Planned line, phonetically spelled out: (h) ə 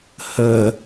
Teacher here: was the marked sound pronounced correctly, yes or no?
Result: yes